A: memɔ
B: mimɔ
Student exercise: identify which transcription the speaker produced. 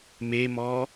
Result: A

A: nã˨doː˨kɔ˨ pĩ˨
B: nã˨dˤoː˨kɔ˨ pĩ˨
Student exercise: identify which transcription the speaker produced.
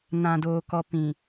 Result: A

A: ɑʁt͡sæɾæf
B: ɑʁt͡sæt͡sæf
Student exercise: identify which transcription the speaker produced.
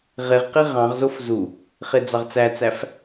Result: B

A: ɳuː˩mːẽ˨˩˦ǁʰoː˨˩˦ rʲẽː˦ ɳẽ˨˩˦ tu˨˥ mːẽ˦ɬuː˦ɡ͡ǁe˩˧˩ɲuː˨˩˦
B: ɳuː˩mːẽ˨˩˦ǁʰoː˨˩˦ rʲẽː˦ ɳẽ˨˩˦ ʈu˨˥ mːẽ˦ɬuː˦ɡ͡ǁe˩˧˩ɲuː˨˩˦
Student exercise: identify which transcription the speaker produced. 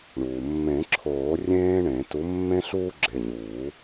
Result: A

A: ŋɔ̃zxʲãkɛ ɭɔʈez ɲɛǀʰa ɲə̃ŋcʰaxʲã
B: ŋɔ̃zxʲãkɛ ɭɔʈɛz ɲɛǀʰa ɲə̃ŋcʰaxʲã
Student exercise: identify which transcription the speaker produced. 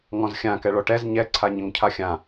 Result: B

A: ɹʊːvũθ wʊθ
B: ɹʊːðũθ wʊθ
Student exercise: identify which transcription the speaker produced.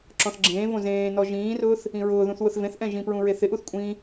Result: B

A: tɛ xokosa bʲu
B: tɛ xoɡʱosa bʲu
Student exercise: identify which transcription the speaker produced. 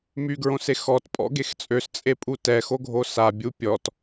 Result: B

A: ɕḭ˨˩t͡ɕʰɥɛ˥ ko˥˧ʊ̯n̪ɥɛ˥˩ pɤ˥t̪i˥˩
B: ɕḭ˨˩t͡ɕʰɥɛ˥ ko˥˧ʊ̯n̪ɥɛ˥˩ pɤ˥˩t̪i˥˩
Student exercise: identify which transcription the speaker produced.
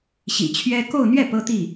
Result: A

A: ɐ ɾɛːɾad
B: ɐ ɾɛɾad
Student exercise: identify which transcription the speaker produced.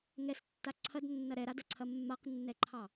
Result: B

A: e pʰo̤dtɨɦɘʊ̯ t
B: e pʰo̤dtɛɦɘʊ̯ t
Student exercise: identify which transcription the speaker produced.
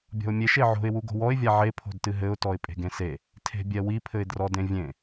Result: A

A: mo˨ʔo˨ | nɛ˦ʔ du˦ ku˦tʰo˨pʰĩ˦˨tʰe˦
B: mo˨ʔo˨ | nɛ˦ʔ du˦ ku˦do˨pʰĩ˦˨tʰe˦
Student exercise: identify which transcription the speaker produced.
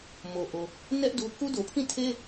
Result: B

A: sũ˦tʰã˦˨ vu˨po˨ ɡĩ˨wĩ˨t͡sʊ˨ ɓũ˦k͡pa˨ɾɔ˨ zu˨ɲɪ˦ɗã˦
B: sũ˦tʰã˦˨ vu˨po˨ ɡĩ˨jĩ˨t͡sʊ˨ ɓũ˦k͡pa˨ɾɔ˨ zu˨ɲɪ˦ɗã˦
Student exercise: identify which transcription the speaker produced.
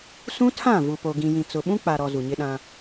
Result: B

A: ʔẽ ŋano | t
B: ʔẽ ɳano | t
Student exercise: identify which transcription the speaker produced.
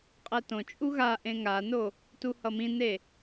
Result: A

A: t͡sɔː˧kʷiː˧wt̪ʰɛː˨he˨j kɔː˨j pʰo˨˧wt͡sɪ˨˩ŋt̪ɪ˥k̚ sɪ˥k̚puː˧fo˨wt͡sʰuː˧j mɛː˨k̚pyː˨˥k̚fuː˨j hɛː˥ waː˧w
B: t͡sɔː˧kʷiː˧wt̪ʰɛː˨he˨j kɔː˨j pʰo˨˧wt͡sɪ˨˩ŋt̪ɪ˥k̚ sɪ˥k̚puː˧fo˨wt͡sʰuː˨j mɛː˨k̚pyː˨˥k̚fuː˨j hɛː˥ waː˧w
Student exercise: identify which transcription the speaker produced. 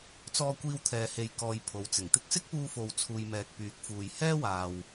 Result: B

